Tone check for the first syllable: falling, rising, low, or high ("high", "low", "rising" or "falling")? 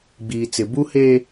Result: low